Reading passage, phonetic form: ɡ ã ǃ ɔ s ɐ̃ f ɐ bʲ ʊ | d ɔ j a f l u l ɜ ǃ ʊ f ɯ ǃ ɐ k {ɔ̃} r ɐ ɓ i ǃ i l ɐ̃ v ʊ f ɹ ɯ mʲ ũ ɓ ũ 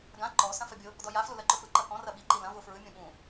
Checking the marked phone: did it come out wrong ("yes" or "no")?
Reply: no